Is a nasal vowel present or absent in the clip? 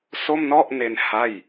absent